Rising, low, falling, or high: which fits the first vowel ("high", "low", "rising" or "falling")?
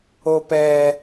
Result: high